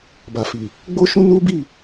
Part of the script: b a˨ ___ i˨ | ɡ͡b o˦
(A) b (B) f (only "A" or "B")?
B